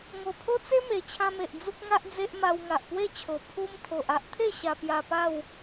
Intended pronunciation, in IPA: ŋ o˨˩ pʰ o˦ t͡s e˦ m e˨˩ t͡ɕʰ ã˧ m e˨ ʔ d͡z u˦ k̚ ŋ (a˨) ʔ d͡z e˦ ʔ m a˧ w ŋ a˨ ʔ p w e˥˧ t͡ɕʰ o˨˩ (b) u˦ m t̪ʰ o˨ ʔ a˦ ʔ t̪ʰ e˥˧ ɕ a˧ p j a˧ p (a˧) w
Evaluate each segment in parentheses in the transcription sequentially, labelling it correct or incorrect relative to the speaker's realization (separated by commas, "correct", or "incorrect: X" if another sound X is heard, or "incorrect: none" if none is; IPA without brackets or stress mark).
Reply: incorrect: a˦, incorrect: pʰ, incorrect: a˥˧